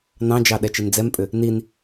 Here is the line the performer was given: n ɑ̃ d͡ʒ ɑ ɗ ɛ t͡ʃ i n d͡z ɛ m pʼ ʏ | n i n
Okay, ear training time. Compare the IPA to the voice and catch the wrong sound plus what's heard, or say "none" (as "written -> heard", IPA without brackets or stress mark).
none